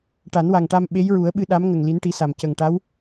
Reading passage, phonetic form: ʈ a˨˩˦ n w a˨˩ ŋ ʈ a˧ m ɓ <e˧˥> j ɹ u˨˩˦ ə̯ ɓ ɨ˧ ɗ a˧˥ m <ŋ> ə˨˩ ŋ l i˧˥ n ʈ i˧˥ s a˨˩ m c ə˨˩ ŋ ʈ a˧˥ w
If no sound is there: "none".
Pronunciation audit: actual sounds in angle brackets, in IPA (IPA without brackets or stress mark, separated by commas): e˧˥, ŋ